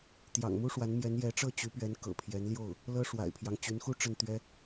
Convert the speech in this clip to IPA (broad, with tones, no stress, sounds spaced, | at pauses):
t̪ j ɑ̰˨˩ ŋ m u˥ ʂ w a˧˥ n m j ɛ˧˥ n j ɛ˧˥ ʈ͡ʂ ɤ˥˩ t͡ɕ y˧˥ p ɥ ɛ˧˥ n k ɤ̰˨˩ pʰ j ɛ˧˥ n l j o˥˩ ʊ̯ | l ɤ˥ ʂ w a̰˨˩ ɪ̯ pʰ j ɑ˦ ŋ t͡ɕ y˧˥ n x u˥ ʈ͡ʂ ə˥˩ n t̪ ɥ ɛ˥